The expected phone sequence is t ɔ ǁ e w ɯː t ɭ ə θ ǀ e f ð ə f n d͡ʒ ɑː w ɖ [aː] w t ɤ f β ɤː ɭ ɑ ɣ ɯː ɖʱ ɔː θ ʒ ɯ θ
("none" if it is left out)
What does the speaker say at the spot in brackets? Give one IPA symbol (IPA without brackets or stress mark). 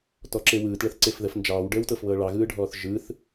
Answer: əː